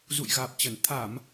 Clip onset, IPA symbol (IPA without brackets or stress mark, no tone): z